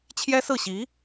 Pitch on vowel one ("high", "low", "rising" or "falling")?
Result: high